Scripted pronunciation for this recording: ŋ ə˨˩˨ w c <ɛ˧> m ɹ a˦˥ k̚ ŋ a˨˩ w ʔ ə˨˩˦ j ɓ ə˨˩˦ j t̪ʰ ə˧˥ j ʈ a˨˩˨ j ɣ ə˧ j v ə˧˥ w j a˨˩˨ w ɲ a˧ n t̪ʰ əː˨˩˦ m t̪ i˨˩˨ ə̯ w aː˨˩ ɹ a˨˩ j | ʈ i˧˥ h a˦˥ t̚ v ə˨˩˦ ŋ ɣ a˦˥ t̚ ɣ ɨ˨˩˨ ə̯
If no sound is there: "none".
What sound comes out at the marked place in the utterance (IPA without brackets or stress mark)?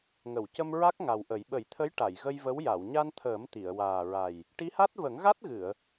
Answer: ə˧